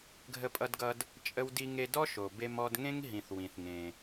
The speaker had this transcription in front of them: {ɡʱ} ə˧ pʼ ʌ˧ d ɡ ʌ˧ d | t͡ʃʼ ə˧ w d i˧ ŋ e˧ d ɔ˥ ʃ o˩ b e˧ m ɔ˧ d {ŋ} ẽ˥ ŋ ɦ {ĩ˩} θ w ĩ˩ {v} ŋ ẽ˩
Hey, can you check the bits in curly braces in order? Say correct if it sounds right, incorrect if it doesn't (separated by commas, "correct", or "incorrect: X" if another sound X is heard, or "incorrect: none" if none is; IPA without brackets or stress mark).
correct, correct, correct, incorrect: θ